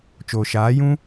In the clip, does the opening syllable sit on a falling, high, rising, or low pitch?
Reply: low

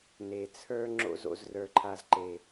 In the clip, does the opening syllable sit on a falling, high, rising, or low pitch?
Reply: low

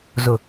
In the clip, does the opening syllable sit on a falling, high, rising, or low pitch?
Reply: low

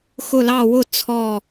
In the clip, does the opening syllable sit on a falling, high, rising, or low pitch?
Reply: falling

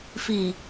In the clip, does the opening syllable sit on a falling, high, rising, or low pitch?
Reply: low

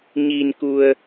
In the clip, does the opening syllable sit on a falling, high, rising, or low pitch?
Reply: low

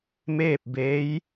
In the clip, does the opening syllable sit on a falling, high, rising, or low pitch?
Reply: falling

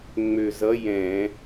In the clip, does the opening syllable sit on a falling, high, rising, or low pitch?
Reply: low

